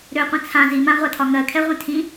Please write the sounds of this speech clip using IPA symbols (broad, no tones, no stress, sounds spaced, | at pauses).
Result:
ɾ ø qʷ ĩ t͡sʰ ã z i m ã ʁʷ a tʰ ɒ ŋ ɜ kʰ ɛ ʁʷ ĩ tʰ ĩ